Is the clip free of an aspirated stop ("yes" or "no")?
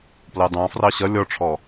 no